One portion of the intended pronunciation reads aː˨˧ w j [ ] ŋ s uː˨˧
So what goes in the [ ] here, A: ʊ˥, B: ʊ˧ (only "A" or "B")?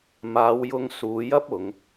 B